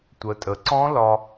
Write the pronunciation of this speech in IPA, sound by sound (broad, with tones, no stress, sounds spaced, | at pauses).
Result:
tʷ ə˩˧ tʼ ə˩˧ ǀ ɔ̃˦˥ l ɒ˧